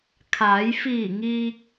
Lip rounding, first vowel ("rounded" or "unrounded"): unrounded